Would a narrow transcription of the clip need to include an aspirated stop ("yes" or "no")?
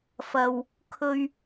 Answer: yes